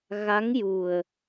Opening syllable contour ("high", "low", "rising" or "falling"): rising